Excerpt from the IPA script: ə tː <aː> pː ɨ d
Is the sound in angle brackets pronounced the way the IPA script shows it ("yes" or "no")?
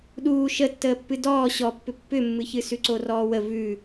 no